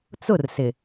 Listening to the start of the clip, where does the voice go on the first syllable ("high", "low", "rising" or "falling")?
falling